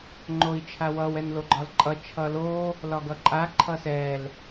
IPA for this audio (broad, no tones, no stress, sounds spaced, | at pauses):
ŋ͡ǃ o i̯ t͡ʃʰ a w ʌ w ɛ n l o ɡ͡ǃ ɒ l ǃʼ ʌ t͡ʃʰ ʌ l o | l ɒ ɡ ʌ ǃʼ a ǃʰ ʌ s ɛ l